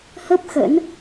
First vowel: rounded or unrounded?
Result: unrounded